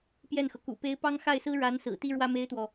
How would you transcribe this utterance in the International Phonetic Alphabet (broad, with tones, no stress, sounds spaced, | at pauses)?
p j ɛ˥˩ n x ɤ˩ k ṵ˨˩ p e˧˥ ɪ̯ p ɑ˥ ŋ x a˥˩ ɪ̯ s ɹ̩˥ ɻ a˧˥ n s ɹ̩˨˩ t̪ i˥ ɻ w ä˥ m e˥ ɪ̯ t̪ w ɔ˨